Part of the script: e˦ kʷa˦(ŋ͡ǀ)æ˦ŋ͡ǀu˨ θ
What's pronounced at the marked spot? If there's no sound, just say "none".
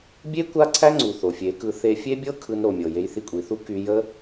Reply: ǀʰ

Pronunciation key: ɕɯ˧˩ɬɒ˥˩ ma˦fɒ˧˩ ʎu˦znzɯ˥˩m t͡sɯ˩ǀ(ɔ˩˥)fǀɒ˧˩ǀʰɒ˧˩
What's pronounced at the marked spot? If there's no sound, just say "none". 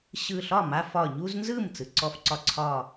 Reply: ɔ˧˩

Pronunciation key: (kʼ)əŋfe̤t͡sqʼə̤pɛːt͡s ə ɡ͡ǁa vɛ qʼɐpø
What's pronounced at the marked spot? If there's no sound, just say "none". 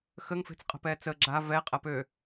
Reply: x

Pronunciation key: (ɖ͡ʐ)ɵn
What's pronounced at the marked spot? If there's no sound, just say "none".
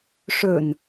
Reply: ʂ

